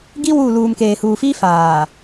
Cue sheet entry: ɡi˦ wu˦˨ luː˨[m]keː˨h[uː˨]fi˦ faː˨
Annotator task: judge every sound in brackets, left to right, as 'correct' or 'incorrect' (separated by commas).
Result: correct, correct